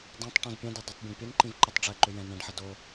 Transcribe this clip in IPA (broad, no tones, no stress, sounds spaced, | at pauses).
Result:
d ã tˤ ʈ õ z pʲ ɛ̃ d i dˤ ə tˤ bʲ ɛ̃ ɖ pʲ ɵ n ǃ ĩ v ǃ ɵ tˤ ɖ͡ʐ ɛ ǃ ʏ j ɛ̃ n ɛ̃ ɖ ħ ə d o